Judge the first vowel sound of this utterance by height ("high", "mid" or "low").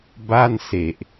low